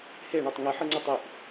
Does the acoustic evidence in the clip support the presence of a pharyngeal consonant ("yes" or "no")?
yes